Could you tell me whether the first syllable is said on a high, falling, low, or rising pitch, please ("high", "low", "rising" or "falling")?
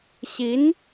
rising